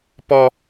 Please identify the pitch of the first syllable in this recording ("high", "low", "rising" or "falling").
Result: high